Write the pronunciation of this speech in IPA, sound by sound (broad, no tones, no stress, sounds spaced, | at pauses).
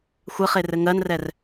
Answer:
xʷ ɘ χ e r ɘ ŋ ɜ n r ɛ r